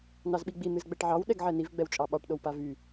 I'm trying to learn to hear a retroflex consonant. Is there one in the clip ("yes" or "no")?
yes